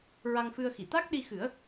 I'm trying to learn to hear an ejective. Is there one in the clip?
no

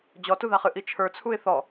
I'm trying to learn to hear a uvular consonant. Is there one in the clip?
yes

